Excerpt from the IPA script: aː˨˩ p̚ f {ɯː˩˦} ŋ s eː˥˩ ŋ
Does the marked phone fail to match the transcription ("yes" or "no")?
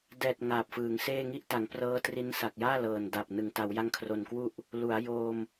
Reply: no